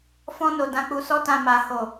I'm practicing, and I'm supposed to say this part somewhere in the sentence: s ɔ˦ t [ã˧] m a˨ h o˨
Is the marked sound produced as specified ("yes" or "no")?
yes